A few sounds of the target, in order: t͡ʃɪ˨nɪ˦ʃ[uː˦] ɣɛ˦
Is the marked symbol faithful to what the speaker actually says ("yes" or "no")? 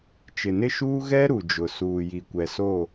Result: yes